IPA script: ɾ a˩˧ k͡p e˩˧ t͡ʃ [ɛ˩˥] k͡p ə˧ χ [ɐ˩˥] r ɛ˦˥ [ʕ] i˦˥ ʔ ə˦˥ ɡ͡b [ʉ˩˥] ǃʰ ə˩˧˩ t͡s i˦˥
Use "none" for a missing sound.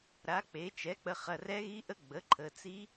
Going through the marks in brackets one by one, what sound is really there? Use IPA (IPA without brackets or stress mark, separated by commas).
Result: ɛ˩˥, ɐ˩˧˩, ɣ, ə˩˥